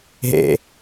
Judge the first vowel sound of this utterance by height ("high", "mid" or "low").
mid